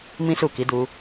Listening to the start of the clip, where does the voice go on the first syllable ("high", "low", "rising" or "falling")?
high